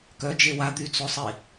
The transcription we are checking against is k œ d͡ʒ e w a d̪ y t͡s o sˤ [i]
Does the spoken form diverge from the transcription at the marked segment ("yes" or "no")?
no